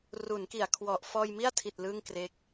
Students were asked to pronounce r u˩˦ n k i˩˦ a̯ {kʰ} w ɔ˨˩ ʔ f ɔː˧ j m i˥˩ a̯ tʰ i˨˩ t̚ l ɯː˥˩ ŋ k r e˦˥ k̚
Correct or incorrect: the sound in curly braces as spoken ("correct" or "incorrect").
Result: correct